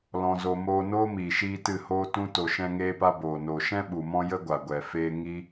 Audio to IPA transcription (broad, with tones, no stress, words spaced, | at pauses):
lɔ̃˧zo˧ moː˧noː˦miː˨ʃiː˧ tɨ˦˨hoː˦tũ˦ to˧ʃɛ̃˦ŋeː˦pa˦ boː˨noː˨ʃɛ̃˦ ɓu˨mɔ̃˦ jə˦ɡʷa˨ɡʷɛ˨ feː˦ ŋi˦